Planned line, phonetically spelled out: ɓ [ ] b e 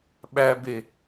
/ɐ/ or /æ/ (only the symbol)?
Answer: æ